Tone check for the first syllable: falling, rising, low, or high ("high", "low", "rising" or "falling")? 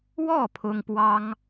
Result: falling